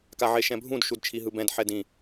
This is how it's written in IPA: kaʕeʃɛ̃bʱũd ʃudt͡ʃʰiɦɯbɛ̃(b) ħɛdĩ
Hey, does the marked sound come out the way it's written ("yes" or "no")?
no